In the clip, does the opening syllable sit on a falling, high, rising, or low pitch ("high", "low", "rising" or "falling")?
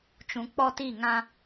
low